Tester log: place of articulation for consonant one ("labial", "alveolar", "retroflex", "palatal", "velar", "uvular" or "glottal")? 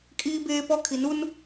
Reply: velar